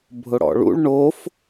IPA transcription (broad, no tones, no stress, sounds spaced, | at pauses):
bʱ ʊ ɽ ɔ̰ ɭ ṵ ɭ ɳ o f